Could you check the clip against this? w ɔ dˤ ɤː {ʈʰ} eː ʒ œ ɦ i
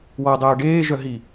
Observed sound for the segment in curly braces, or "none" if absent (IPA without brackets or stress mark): ɖ